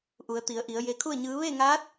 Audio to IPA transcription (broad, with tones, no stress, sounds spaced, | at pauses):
ʔ u˩˧ ə̯ t̪ i˩˧ ə̯ ʔ i˩˧ ə̯ j e˧ kʰ u˥˨ ə̯ ɲ ɯː˧˥ ʋ e˥˨ ŋ aː˧˥ t̚